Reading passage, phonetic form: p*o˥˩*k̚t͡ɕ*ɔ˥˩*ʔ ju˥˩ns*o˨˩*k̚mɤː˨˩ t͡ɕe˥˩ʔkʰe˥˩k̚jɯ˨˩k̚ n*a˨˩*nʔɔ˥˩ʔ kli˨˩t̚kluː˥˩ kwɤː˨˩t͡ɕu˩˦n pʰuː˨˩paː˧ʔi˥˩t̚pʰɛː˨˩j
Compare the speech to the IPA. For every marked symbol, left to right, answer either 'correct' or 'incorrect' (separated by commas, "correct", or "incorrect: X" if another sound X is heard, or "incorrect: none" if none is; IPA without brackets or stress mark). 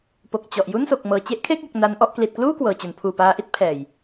incorrect: o˨˩, incorrect: ɔ˨˩, correct, incorrect: a˦˥